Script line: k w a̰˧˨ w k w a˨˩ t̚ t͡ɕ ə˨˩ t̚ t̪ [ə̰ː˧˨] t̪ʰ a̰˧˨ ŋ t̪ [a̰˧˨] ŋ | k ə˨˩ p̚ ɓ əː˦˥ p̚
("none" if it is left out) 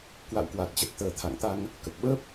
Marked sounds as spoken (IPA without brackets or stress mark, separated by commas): əː˧˩, a˧